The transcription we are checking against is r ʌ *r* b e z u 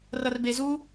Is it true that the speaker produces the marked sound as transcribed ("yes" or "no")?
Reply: yes